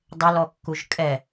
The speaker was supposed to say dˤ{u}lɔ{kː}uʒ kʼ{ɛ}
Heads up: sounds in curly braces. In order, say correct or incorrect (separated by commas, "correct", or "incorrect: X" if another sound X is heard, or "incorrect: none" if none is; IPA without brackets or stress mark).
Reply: incorrect: ʊ, correct, correct